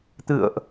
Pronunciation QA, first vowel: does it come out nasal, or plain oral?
oral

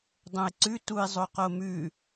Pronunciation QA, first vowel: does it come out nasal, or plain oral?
nasal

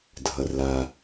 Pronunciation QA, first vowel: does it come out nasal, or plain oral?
oral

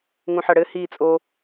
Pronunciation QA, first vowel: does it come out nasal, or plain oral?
nasal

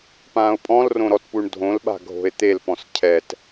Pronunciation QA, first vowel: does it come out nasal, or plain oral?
nasal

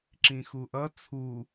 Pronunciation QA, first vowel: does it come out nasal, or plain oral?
nasal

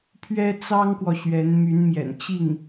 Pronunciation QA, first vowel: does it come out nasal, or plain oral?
oral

